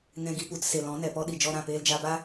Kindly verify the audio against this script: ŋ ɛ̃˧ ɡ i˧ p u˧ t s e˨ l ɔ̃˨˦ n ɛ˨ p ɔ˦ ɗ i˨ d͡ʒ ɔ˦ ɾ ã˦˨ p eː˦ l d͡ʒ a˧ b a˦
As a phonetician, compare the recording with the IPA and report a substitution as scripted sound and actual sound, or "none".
none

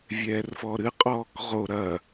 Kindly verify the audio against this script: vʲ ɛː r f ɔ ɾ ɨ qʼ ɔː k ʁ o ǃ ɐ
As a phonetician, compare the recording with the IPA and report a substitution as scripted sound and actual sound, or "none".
ǃ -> ɾ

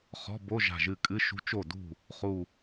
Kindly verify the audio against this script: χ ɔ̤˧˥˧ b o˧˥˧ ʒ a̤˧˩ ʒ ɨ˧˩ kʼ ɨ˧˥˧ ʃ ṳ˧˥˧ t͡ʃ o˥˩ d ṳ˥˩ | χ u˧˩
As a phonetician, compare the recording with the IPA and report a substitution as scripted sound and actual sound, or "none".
none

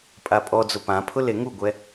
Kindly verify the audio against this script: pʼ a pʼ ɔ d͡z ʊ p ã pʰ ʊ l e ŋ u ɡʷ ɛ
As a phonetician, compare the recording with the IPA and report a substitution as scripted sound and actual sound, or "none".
none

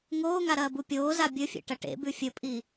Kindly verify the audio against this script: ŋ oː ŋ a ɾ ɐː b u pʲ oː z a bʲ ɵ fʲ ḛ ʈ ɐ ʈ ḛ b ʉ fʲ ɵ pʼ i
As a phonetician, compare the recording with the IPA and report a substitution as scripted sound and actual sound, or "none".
none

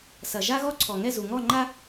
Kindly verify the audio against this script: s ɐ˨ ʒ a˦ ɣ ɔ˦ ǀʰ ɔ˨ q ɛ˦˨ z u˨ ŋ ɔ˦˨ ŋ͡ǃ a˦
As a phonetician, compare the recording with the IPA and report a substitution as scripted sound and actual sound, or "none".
q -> ŋ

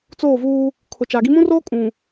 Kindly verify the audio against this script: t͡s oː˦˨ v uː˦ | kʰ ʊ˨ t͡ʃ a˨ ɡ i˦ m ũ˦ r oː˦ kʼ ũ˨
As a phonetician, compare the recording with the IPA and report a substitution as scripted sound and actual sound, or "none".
none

